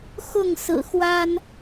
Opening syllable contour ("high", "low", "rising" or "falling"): falling